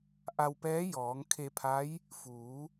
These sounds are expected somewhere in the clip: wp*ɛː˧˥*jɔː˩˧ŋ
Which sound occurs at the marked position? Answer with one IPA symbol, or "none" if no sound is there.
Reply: ɛː˧˥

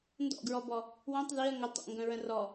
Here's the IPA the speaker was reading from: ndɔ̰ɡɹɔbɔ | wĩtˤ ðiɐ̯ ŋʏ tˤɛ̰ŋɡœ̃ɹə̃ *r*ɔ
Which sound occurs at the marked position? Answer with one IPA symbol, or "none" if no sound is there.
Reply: r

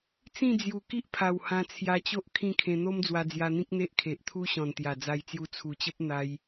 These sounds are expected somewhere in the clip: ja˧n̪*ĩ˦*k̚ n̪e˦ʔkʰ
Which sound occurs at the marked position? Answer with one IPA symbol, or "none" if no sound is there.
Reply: ĩ˦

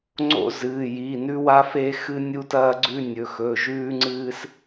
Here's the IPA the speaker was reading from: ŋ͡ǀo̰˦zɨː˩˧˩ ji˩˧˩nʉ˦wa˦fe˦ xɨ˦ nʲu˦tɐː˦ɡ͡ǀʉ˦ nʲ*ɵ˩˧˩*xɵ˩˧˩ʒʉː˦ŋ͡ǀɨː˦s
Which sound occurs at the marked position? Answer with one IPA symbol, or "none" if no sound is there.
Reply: ɵ˩˧˩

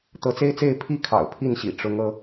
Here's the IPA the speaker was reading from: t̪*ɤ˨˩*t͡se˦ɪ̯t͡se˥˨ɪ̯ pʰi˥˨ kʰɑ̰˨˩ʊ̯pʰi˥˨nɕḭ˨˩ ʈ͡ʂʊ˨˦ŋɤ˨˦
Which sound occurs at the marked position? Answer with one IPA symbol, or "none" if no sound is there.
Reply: ɤ˨˦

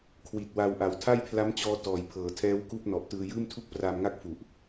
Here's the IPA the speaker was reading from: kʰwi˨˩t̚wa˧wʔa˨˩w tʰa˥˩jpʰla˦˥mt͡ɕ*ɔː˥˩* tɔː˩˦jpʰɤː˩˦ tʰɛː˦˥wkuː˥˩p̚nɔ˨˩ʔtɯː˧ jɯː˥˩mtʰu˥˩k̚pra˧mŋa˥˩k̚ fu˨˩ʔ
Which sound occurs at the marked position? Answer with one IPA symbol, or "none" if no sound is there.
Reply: ɔː˧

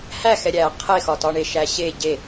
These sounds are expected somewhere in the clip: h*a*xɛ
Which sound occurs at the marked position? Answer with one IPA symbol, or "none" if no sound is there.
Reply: æ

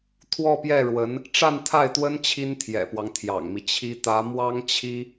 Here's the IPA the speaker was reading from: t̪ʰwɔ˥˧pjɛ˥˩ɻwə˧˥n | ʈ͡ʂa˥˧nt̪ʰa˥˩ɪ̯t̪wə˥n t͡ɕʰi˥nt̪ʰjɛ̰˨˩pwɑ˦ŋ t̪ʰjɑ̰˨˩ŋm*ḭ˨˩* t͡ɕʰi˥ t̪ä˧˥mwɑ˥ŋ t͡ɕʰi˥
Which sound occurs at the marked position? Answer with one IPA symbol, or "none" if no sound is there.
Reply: i˦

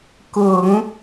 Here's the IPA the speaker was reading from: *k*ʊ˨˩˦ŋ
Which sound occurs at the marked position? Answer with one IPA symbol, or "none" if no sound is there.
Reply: k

